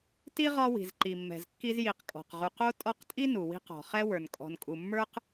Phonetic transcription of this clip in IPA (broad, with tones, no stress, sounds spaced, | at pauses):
t i˥ ʁ ɒ˦ w i̤˩ z ǃ i˩ mː ɛ̤˩ z kː i˦ z j i˨ q kʼ ɔ̤˩ q ʁ u˨ q o˥ tʼ ɔ˦ q tʼ i˥ n u˩ w i̤˦ q ɔ̤˩ χ ɛ˥ w ə˞˩ n kʼ ɔ̤˨ n kʼ u˨ mː ə˞˥ q